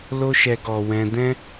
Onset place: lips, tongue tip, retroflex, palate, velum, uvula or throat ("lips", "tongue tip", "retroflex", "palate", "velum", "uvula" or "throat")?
tongue tip